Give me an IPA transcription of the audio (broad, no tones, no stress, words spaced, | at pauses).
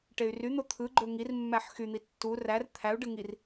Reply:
ʈey̯ryn̪o t̪ʰɯɡ͡ǃø ŋirmːæħ xyn̪i tːu rær t̪ʰæu̯ɖɯ ŋir